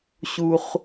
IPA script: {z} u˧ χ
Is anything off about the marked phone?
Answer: yes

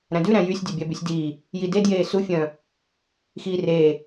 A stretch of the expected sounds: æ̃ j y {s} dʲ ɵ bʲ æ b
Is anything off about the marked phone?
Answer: yes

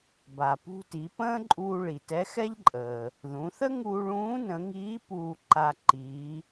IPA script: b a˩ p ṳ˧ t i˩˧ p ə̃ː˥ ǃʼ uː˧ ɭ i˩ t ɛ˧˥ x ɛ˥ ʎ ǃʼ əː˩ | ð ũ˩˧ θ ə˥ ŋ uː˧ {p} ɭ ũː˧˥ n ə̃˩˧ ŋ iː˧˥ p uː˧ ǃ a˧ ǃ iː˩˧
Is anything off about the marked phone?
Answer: yes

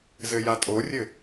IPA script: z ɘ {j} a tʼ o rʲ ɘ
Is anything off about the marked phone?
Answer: no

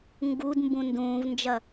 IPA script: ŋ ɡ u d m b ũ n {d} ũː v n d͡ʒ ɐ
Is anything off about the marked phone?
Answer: no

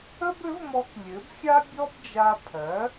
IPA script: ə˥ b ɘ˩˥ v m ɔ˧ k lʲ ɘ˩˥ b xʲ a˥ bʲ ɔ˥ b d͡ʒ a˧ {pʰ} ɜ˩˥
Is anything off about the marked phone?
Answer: no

